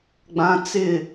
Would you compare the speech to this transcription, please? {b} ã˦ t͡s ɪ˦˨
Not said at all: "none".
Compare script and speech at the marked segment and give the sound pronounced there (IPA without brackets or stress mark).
ɡ͡b